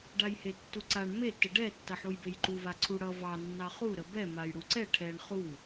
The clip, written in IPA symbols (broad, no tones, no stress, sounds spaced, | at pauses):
ɖ a j h e tː u ǀ a ɳ m e t ə ɖ ɛ tː ʌ ħ u j b e j ǃ u v a ǀʰ u ɽ ʌ v ɑ nː ɑ χ u ɾ ə b ɛ m a j ɽ u ǀ ɛ ʈʰ ɛ ɳ χ u